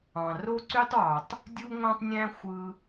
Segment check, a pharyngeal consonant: absent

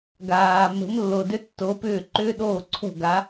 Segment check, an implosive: present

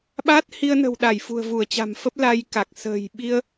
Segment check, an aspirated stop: absent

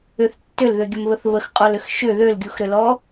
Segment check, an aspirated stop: absent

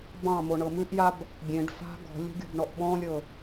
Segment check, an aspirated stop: absent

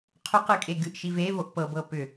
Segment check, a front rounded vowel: present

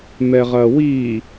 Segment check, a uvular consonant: present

